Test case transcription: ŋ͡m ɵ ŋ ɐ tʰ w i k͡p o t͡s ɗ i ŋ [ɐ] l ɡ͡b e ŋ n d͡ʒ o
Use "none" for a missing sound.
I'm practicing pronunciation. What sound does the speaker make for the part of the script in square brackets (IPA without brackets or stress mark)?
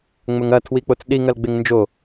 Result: ɐ